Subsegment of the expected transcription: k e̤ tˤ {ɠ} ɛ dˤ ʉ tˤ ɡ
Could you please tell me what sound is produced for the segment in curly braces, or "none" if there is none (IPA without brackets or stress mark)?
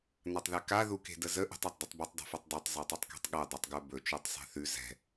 ɠ